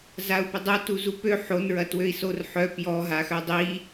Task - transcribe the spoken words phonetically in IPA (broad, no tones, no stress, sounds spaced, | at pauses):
z a u̯ p ə dˤ o t u z u p ø ħ o n ɹ ɐ t w ø i̯ s o r ħ œ p j ɔ ɦ a x œ dˤ i